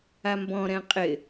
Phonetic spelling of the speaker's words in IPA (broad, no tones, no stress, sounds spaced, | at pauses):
a m b ɔ̃ ɾ ɛ̃ qʼ ɪ